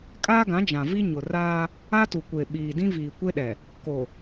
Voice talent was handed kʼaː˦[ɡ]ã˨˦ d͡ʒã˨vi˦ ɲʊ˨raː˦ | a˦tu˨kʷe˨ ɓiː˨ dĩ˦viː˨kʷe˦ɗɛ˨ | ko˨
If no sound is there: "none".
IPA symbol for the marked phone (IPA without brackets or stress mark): ɡ